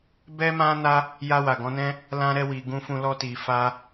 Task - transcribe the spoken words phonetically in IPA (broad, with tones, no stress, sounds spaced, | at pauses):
b ɛ˦ m ã˦ n a˦ | j a˧ w a˨ ɡ ɔ̃˨˦ n ɛ̃˦ | l ã˧ ɾ ɛ˧ w i˨ ɡ ũ˧ f ũ˧ l ɔ˧ t i˨ f a˧